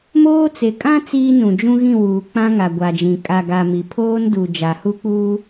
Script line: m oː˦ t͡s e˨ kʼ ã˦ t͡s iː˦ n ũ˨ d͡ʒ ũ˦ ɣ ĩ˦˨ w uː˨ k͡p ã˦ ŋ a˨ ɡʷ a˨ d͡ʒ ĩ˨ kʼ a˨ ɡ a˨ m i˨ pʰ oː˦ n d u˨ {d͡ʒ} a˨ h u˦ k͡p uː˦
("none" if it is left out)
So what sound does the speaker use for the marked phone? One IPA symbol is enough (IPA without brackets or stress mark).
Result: d͡ʒ